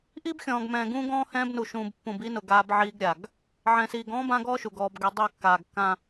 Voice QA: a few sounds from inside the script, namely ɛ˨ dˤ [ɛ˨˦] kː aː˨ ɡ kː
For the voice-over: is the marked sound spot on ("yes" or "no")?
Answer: no